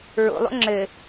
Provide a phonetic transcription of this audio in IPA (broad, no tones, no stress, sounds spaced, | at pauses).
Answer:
ɹ o̰ lˠ o̰ ŋ͡ǁ ɘ